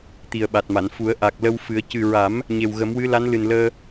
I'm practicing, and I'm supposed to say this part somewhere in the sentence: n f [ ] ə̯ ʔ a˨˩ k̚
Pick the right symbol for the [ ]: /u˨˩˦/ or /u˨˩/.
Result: u˨˩˦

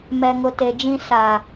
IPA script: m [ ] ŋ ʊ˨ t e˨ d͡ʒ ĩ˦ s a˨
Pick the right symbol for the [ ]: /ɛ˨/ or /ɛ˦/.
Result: ɛ˨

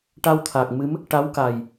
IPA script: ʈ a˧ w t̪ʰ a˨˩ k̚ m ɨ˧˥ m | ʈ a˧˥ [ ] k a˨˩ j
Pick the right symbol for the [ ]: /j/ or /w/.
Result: w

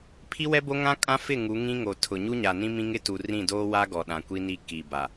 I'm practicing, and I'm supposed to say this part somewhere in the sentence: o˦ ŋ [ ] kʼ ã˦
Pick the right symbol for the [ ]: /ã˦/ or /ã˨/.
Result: ã˦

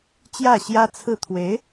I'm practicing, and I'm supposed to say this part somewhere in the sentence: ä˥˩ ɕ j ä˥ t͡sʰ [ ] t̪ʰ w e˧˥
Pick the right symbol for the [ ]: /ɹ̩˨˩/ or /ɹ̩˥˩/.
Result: ɹ̩˥˩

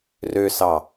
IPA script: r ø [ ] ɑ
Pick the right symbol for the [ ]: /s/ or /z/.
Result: s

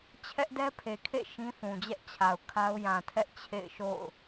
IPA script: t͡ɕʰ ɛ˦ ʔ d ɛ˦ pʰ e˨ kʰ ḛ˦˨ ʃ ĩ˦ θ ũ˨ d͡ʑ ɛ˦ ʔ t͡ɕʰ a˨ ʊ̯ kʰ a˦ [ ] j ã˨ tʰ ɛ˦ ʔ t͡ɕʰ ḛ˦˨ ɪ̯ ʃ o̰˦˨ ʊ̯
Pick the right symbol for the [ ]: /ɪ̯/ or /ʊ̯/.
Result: ʊ̯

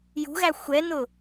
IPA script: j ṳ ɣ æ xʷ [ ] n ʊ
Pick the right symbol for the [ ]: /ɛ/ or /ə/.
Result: ɛ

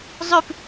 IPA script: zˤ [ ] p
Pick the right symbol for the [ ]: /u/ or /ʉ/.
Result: ʉ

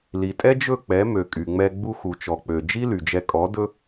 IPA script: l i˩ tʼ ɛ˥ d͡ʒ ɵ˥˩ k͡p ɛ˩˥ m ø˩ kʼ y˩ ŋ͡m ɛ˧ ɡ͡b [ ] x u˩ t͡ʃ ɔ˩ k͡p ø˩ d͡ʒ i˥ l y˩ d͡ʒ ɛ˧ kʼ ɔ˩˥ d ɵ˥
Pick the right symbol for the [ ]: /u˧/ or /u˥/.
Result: u˧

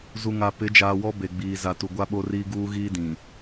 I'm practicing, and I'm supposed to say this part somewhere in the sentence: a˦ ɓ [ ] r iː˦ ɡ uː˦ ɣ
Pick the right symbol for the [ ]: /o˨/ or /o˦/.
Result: o˦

